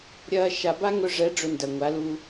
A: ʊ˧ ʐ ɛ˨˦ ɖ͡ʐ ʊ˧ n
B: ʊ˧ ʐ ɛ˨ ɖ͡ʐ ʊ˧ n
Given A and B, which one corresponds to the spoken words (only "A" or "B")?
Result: A